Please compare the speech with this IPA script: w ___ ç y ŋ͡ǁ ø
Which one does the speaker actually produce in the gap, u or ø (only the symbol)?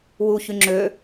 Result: u